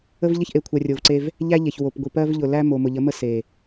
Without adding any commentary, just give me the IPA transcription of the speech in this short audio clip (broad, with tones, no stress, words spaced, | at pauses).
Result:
ə˦vʎə˦çʔe˨kʷʰɜ˨ rʲo˨vǀe˦v | ʎæ˦ ʎe˨çwo˨pɡʷi˨ pɜ˦vʎʊ˨ læ˦mo˨ mʊ˨ʎə˨˦mə˦ se˨